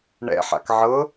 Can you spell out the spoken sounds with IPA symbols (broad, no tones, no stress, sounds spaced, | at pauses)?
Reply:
ɳ ɛ̰ ħ a̰ k ʕ ɤ